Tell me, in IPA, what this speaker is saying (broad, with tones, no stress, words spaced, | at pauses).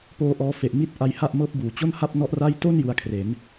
poː˧ʔɔː˧fe˨˩ʔ mi˥˩t̚ ʔa˧jha˥˩ʔmɤː˦˥p̚buː˨˩ t͡ɕo˥˩nha˥˩p̚nɔ˦˥ʔra˥˩j to˥˩n ju˧a̯kʰre˩˦n